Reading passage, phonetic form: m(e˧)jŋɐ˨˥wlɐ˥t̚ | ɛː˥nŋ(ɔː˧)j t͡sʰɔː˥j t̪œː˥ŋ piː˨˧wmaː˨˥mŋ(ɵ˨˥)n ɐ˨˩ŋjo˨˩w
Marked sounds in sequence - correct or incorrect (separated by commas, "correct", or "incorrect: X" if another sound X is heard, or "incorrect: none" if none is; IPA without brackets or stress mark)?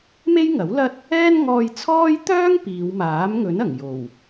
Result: incorrect: e˥, correct, correct